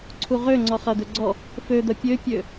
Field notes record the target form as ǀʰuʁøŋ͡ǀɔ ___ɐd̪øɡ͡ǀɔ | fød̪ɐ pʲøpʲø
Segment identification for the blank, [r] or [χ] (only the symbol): χ